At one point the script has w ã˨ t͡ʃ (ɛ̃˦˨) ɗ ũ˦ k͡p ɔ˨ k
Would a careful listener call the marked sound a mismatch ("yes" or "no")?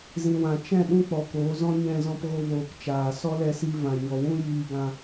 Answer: no